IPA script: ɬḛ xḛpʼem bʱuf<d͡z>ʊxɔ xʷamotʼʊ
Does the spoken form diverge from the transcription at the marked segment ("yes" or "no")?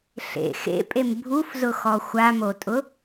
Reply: yes